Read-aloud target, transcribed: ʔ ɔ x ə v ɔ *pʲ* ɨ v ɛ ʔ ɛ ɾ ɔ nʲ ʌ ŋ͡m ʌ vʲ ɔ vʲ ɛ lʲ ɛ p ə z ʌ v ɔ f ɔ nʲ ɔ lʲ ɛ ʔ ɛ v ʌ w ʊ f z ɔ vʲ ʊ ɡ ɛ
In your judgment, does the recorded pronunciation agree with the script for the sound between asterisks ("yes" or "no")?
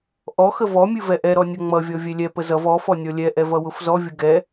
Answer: no